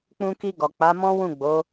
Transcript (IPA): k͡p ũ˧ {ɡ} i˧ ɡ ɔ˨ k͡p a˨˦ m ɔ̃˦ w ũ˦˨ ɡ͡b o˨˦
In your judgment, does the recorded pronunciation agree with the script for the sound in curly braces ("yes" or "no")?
no